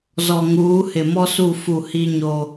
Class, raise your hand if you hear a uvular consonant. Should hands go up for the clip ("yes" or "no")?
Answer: no